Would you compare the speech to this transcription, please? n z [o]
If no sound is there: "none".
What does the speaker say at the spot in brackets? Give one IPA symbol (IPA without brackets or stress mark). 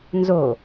o